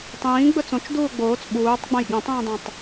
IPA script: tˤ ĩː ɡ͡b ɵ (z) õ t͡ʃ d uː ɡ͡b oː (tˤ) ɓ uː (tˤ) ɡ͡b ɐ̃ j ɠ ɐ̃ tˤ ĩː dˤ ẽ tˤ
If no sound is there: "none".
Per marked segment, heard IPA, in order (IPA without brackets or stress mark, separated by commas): t͡s, t͡s, tˤ